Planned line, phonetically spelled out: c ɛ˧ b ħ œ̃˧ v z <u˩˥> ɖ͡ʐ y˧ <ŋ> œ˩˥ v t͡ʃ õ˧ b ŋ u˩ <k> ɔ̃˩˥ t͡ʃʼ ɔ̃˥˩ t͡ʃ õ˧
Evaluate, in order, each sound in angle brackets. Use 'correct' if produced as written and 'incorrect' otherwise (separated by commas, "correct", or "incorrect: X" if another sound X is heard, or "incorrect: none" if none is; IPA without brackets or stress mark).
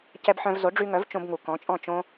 incorrect: o˩˥, correct, correct